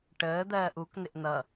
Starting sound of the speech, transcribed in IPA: ʈ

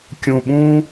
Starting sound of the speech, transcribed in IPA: kʲ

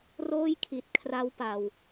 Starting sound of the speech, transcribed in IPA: r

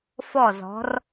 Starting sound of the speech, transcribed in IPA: f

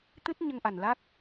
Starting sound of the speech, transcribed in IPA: t̪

